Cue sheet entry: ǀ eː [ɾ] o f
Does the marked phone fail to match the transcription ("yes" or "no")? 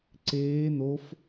yes